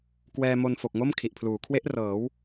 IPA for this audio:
k w ɛː˧ m o˧ n f o˨˩ k̚ ŋ o˥˩ m kʰ i˨˩ ʔ pʰ l uː˩˦ kʰ w e˦˥ ʔ r ɤː˩˦ w

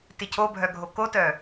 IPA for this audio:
t ɪ cʰ o bʱ œ ɡʱ o k o t œ

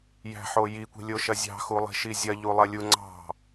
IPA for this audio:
j æ̤ ħ o j i kʷ i̤ lʲ o ʃ ɐ zʲ ɑ̤ x u lˠ i̤ ʃ i zʲ ɐ ʎ u lˠ ɜ lʲ u ŋ͡ǀ ɑ̤

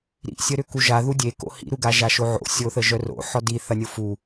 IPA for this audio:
ɾ ḭ sʲ ə ɾ ʏ k u ʒ a ð u dʲ e k o̰ h ḭ ɾ u ɡ a ʒ a ʃ o ʕ o̰ sʲ o θ ə ʒ œ r o̰ ħ ɔ d i θ ɐ nʲ o f u

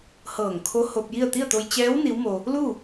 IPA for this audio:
h ɤː˧˩ ŋ kʰ o˧˥ h o˧ p̚ j i˥˨ ə̯ t̪ i˥˨ ə̯ t̪ o˧ j t͡ɕ ɛː˧˥ w n i˧˥ w m o˧ | l u˥˨

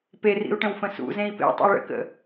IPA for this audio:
p e r ḭ u̯ ʈ ə̃ w f ə̃ s ṵ z ẽ i̯ p ḛ tˤ ə̰ i̯ ɭ ə̰ k ə̰

